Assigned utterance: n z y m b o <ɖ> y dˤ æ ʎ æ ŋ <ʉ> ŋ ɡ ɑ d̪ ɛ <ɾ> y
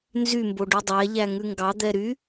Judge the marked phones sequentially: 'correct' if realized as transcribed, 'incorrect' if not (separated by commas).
correct, correct, correct